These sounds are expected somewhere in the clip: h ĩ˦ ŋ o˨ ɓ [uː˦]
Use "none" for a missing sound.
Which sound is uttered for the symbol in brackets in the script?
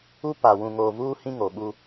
u˦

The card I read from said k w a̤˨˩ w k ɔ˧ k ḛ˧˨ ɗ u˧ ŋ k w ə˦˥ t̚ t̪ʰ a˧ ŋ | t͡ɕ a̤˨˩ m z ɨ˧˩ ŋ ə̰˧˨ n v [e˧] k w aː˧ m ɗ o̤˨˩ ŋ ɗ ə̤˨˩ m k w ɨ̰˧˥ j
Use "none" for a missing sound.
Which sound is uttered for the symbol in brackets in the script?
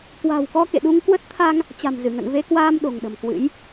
e˧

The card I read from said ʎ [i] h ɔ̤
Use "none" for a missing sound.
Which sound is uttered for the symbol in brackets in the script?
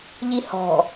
i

